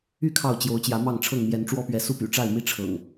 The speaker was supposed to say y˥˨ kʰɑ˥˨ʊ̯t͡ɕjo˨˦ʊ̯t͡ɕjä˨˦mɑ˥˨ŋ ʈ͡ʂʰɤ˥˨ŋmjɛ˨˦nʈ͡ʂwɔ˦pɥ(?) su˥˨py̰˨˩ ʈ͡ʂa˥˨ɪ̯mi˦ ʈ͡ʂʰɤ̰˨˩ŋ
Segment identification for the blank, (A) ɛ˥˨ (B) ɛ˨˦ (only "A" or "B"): B